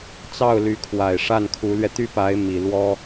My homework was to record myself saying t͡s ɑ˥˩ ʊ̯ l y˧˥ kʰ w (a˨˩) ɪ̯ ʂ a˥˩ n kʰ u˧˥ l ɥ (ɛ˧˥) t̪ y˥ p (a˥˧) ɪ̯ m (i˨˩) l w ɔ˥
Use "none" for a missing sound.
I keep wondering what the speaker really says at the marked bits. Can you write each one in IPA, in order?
a˨˩, ɛ˧, a˧˥, i˨˩

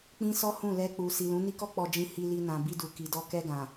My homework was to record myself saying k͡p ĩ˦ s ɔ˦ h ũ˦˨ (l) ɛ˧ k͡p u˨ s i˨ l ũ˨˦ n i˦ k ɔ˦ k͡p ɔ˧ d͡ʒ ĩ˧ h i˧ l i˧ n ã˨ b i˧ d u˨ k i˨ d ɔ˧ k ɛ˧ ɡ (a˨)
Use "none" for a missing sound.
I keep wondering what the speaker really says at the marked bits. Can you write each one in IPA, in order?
l, ã˨

